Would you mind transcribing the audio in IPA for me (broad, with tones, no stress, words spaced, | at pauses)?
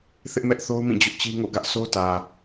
θɪ˦ʔmɛ˦ʔθo˦ʊ̯mĩ˦˨ d͡ʑʊ˦ʔt͡ɕi˦ŋo̰˦˨ ɡä˦ʔsʰo˦tä˨